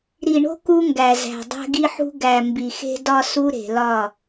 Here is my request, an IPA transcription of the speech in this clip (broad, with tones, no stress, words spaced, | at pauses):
ɾi˨ɳo̤˦ ku˦ŋɡæ˨zæ̤˨ dˤæ̤˦ɡi˦ħṳ˦ ɡæ˨ mbi˨xe̤˦dɒ˦ su˦ɾe̤˨lɒ˦˨